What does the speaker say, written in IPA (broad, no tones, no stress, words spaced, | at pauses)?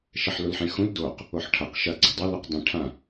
ʃɐħlulħẽxũl doq | oħʈʰɐq ʃɐ ɡ͡ǀedˤɐ luqdˤĩ ʈʰã